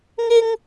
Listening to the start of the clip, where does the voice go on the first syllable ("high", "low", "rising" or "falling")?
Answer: high